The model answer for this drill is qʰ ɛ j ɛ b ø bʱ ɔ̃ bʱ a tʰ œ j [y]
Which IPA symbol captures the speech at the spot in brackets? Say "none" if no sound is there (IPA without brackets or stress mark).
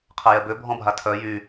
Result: y